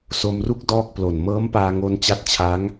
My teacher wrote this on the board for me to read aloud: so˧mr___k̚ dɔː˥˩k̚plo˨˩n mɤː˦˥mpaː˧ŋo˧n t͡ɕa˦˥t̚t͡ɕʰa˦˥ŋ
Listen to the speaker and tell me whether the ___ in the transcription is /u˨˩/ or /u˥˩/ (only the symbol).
u˥˩